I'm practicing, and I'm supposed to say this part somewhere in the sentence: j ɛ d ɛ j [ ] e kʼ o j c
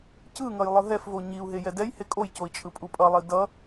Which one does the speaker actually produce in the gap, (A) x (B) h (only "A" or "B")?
B